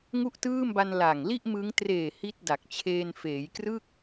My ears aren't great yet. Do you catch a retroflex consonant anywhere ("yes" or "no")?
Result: no